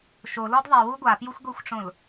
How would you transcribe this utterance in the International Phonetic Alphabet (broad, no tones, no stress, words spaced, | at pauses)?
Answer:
ʃolɔd ðˤiwu ɡʷapjuxʷɡʷixʷʈ͡ʂõl